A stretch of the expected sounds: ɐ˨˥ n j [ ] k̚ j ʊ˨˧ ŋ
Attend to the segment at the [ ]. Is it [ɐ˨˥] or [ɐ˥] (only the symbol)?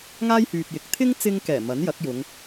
ɐ˨˥